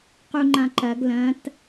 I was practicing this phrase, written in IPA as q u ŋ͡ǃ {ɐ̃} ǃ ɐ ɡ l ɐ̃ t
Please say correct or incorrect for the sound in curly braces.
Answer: incorrect